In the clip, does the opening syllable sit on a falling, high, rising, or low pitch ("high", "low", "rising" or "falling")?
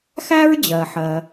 high